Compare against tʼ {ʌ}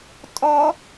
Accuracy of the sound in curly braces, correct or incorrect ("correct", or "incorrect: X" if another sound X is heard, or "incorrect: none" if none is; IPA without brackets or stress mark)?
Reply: incorrect: ɔ